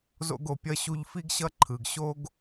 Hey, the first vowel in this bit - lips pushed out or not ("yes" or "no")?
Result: yes